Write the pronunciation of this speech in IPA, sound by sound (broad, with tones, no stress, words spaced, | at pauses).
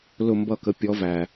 lʊ˧˩mbʌ˧˩kə˩˧pʲɔ˩˧ væ˩